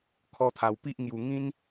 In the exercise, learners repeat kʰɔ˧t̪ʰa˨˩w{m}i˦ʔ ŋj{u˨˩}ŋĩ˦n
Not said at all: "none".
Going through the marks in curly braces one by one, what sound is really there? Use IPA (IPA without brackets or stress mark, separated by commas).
p, u˨˩